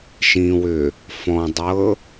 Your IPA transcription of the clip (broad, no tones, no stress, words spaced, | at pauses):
ʃĩwʏ | fɔ̃dˤɤ